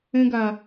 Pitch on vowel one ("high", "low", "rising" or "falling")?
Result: high